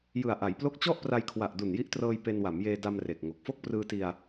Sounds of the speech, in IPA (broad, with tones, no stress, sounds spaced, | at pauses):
j ɯ˨˩ a̯ ʔ a˩˦ j p l o˥˩ k̚ t͡ɕ ɔ˥˩ ʔ p r a˧ j kʰ w a˨˩ ʔ d u˨˩ n j i˦˥ ʔ t r ɤː˧ j p e˧ n w a˩˦ m j eː˧ d a˧ m r e˨˩ k̚ ŋ o˨˩ k̚ f o˥˩ k̚ p r ɯː˧ t i˧ a̯